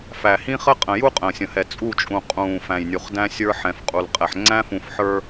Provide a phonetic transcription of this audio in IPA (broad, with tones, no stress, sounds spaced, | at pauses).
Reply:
f æ˨ h ĩ˦ χ ə˦ qʼ ə̃˨ j u˦ qʼ ə̃ː˨ sʲ ə̃˨ h ɛ˨ t͡sʼ u˦˨ t͡ʃʼ ũ˨ qʼ ũː˨ f æ̃˨ j nʲ u˨ χ d æ̃˦ sʲ ə˞˦ ħ ɛ̃˨ f qʼ u˨ l qʼ ɛ˨ ħ ŋ͡ǀ æ̃˦ f ũ˨ f ħ ə˞˦